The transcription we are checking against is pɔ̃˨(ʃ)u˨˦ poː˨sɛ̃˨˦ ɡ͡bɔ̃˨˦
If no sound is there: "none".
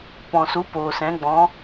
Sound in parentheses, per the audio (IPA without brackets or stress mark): s